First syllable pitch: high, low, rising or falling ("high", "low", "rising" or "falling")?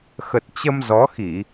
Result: low